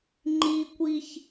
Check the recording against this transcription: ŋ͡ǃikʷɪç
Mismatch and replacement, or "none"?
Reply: ɪ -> i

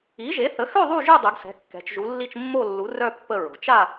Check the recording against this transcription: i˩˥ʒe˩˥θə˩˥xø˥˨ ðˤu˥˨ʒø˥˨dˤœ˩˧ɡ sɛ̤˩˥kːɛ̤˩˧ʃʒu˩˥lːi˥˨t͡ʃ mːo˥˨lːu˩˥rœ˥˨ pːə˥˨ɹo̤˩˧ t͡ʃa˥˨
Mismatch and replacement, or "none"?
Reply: ʃ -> t͡ʃ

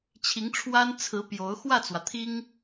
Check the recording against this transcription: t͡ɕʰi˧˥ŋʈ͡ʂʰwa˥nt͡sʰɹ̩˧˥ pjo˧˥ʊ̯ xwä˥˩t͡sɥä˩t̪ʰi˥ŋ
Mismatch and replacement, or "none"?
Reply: ɥ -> w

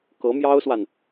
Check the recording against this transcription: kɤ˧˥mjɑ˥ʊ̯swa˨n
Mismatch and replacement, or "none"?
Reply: none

